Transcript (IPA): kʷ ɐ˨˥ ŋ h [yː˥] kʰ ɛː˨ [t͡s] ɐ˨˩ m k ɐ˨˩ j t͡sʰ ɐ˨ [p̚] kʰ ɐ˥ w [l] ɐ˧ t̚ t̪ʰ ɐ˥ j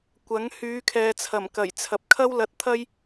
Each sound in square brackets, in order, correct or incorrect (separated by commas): incorrect, incorrect, correct, correct